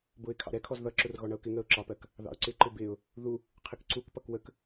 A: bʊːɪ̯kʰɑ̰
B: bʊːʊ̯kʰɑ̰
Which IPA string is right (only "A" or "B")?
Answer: A